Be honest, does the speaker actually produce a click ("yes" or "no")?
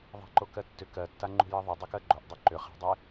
yes